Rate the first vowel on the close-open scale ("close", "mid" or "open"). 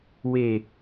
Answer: mid